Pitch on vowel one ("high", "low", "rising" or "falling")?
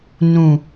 low